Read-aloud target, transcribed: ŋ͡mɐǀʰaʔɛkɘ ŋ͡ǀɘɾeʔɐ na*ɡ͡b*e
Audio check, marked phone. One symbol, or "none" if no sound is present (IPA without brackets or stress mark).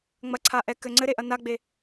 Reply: ɡ͡b